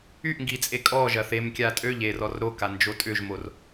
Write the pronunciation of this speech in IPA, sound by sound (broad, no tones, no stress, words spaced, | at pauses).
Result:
yʔŋɡit͡sʼe kʼɔʒɐ θem kʲatʼøʎ er ɔrɾoka nd͡ʒotʼʏʒmor